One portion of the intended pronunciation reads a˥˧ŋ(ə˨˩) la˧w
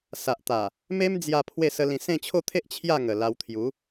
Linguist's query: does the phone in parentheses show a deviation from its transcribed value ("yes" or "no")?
no